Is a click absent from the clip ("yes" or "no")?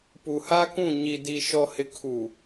yes